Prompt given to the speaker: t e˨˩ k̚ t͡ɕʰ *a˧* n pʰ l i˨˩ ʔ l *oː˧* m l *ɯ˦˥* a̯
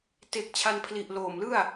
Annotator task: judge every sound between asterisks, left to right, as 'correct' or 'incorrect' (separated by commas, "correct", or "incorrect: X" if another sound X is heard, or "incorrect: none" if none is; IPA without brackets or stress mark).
correct, incorrect: oː˨˩, incorrect: ɯ˥˩